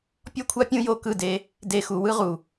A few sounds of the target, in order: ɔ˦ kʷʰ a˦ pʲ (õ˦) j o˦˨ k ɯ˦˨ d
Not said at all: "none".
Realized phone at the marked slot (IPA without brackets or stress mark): ũ˦